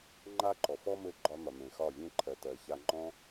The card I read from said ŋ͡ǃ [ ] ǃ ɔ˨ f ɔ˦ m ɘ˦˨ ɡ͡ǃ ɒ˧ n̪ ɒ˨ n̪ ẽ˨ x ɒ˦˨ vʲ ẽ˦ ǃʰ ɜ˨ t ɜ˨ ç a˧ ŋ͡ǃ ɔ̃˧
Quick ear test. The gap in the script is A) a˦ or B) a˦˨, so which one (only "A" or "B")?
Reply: A